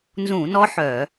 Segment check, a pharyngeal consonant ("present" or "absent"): present